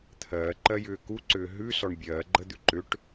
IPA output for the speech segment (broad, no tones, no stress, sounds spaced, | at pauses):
t̪ʰ ɜː ǃ ɜ j ʏː k u ǀ ʏː ɦ ʉ s ɔ ɳ bʲ ɜː ɡ͡ǃ ə d̪ ʉ ǃ ʏ ʈ